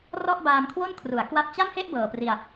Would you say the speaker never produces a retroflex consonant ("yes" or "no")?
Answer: yes